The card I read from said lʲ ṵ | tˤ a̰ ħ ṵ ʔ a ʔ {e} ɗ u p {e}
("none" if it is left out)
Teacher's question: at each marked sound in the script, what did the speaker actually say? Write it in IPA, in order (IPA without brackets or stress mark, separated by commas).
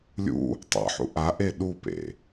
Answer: e, ḛ